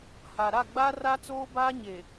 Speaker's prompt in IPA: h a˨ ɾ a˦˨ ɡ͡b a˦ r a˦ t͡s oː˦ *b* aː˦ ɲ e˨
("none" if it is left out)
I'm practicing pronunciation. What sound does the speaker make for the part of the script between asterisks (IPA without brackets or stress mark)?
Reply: b